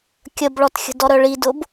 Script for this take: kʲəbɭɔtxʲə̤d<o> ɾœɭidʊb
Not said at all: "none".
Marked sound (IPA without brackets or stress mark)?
ɔ